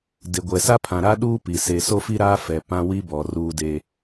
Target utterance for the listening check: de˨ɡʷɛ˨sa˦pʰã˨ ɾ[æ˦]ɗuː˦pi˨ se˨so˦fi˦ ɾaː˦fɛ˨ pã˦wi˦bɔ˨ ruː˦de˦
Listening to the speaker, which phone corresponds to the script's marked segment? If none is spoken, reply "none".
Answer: a˦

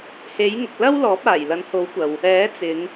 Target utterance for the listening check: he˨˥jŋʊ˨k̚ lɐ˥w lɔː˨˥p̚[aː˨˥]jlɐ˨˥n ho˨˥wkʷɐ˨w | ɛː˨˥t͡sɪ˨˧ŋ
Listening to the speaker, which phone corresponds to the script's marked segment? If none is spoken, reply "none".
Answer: aː˨˩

